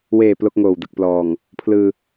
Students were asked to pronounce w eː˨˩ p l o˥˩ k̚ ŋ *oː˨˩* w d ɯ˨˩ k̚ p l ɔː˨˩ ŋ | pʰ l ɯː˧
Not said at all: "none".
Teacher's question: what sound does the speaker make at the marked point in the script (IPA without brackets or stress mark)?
oː˨˩